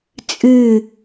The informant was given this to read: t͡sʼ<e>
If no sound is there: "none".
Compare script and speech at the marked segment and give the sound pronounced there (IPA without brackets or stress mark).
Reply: ɨ